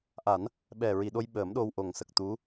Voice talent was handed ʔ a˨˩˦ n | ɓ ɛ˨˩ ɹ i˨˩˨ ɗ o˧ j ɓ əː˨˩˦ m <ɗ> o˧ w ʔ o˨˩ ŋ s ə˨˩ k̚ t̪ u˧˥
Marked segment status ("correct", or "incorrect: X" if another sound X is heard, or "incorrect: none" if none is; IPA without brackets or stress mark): correct